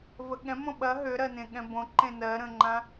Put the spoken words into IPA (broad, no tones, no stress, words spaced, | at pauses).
vəɠɛ̃ mõɓɐ ɦøɾɜnẽ ɠɛ̃bõ ǃẽnɜɾə̃ŋ͡ǃã